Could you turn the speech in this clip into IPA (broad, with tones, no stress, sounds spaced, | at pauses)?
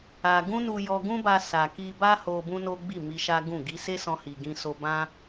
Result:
a˧ ɡ ũ˦ n u˧ j ɔ˧ ɡ ũ˦ b a˧ s a˨ k i˧ b a˦ h o˧ b ũ˦ n o˦ ɡ͡b i˦˨ m i˧ ʃ a˦ ɡ ũ˦˨ ɡ i˧ s e˦ s ɔ̃˦ h i˧ ɡ ĩ˧ s o˧ b ã˦